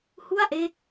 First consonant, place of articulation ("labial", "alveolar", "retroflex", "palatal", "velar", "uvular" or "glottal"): glottal